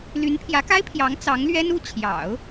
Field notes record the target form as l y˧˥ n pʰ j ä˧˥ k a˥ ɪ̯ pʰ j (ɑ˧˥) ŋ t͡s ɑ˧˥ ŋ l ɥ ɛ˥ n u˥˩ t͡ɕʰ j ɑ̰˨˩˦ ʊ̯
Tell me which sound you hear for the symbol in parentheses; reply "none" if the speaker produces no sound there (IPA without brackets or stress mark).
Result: ɑ˧˥